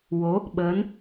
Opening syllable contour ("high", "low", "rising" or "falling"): rising